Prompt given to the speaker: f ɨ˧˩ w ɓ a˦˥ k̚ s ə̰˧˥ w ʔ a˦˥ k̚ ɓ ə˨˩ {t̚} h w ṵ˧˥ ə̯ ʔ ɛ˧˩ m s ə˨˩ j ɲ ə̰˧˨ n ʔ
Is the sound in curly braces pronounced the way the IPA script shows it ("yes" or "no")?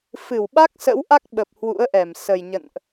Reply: no